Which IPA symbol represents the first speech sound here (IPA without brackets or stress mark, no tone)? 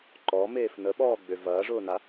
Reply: ǃ